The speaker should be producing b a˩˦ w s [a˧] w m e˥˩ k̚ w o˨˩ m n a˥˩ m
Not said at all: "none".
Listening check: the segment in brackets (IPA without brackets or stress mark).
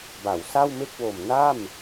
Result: a˥˩